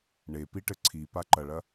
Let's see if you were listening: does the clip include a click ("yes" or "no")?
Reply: yes